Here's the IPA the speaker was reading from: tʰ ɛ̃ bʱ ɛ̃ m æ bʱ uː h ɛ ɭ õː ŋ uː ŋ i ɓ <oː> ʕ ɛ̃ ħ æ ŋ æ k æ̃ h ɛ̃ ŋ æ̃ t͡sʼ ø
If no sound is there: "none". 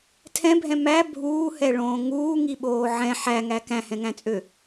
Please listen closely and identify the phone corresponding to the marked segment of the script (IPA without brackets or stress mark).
oː